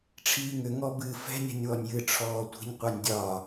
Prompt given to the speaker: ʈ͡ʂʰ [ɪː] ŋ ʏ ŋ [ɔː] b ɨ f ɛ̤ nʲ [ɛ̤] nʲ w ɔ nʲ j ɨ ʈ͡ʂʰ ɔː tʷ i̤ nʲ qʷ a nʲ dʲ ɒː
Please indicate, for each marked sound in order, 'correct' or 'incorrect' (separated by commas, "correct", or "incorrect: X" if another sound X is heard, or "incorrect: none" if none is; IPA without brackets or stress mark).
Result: incorrect: iː, incorrect: ɔ, correct